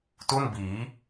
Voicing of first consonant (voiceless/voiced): voiceless